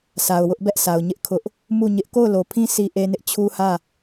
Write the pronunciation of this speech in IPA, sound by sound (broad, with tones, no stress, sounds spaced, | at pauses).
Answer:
s a˨ ʊ̯ w ʊ˦ ʔ b ɛ˦ ʔ sʰ a˨ ʊ̯ ɲ ɪ˦ ʔ kʰ ʊ˦ ʔ | m u˦˨ ɲ ɪ˦ ʔ k o˦˨ ʊ̯ l o˨ pʰ ĩ˦ s i˦ ʔ e˦ n ɪ˦ ʔ t͡ɕʰ u˦ h ä˦˨